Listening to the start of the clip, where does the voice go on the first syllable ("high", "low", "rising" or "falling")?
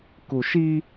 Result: low